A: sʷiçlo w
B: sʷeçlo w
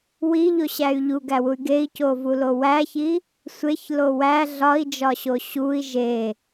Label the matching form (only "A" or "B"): B